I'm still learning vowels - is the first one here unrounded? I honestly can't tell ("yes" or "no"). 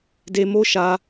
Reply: yes